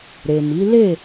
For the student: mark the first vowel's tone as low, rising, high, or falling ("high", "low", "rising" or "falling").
low